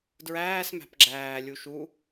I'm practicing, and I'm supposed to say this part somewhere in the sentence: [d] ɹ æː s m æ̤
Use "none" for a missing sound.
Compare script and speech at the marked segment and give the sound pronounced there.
d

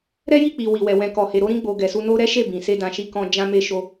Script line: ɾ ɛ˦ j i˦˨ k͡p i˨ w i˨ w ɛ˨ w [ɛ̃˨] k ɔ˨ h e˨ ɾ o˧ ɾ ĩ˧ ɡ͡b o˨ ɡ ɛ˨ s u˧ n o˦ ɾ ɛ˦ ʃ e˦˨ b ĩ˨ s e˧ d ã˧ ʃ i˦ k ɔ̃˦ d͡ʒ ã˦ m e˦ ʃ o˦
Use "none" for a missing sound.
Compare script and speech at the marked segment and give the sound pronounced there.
ɛ̃˨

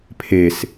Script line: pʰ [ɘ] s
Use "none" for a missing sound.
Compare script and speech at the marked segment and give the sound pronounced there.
e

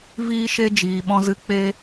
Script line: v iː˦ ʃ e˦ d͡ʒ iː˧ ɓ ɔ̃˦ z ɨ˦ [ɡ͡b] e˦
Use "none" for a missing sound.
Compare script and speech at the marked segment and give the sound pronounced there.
k͡p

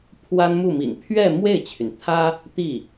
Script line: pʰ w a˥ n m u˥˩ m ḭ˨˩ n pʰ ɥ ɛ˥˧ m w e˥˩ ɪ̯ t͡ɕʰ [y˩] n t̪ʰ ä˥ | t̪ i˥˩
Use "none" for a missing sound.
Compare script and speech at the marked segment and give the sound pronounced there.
y˩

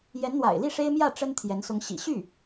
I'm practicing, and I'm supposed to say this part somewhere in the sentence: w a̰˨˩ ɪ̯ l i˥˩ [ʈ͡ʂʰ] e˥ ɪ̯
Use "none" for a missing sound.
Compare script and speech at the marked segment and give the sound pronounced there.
ʂ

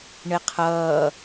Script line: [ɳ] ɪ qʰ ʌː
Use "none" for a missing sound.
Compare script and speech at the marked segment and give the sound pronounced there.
ɳ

